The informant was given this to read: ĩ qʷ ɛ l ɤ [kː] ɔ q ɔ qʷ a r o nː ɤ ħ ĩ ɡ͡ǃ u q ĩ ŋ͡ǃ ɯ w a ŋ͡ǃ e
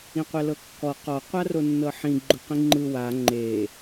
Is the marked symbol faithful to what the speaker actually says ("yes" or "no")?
yes